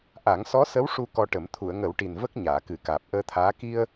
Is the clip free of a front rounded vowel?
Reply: yes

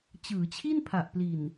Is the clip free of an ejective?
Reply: yes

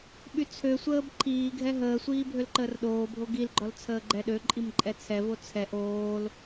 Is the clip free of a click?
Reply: no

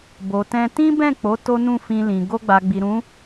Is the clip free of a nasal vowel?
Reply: no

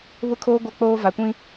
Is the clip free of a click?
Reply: yes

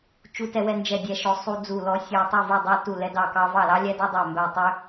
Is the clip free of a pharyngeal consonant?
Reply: yes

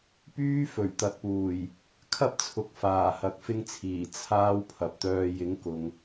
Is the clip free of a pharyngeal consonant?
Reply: yes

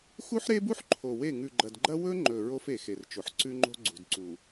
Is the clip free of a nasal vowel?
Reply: yes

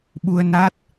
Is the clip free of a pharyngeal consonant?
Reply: yes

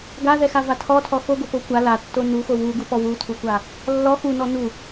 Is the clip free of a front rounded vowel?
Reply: yes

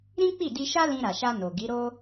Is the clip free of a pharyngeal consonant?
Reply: yes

